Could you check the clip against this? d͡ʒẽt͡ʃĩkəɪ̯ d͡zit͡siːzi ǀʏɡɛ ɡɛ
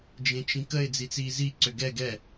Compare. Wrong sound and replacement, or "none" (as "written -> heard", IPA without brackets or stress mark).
none